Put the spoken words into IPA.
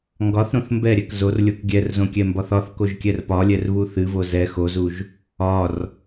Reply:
ŋ ɡ ɒ θ ɾ õ θ m b ɛ ɾʲ ɛ k z o r lʲ o k ɡʲ ɛ r z õ kʲ ɛ m b ɒ θ ɒ θ k o ʒ kʲ ɛ r p ɒ lʲ ɛ r β u θ ɨ v o z ɛ x o z u ʒ | ɒ r

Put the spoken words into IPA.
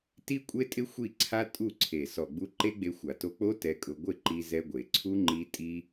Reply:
t i˦ kʷʼ e˦ tʼ ɪ˦ xʷ i˦˨ ǀʰ a˦ tʼ u˦˨ ǀʰ e˨ s ɔ˨ ɡ͡b u˧ ǃ e˦ ɡ͡b e˧ xʷ a˨ t o˧ k͡p o˦ t ɛ˧ kʼ ʊ˧ ɡʷ ɪ˦˨ ǃ i˧ z ɛ˧ ɡʷ e˨ ǀʰ u˦ ŋ͡ǃ i˦ tʼ i˦

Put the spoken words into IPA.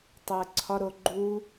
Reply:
tˤ o ə̯ ǀʰ ɒ ɾ o ɡ͡ǃ u

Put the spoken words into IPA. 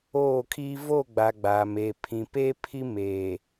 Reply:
oː˦˨ kʰ iː˦ v o˦˨ ɡ͡b a˨ ɡ͡b aː˨ m eː˨ pʰ ĩ˨ p eː˦ pʰ i˦ m eː˨

